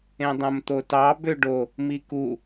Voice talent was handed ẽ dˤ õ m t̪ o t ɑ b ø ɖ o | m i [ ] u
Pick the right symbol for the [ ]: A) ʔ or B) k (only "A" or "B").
B